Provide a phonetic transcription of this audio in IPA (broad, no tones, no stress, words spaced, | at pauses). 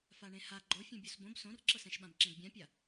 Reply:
faɳẽha ɡ͡ǃofʲũ bʲosbõb sõrǁɤsɛ̃ʃɓãb ǁẽɡbʲãpʲa